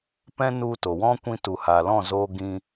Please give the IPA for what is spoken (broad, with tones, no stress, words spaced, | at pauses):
pɛ̃˦nu˧to˨wɔ̃˦ kʷĩ˧tu˨ha˨lɔ̃˦˨ zoː˦ ɡĩ˧